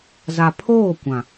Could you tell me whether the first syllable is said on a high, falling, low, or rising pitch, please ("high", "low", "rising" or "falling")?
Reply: low